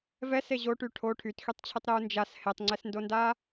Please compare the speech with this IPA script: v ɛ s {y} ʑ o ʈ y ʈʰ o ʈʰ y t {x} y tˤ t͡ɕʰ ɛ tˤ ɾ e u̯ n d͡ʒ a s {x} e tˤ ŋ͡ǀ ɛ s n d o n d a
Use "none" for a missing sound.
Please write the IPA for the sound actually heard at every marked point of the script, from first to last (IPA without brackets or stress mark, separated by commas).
e, x, h